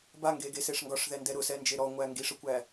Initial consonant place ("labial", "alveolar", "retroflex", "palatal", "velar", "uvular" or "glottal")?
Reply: labial